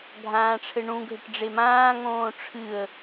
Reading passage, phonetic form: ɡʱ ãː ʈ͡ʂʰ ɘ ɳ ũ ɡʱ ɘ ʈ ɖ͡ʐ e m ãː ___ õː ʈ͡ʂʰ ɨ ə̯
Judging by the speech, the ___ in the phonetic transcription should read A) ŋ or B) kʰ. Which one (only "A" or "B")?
A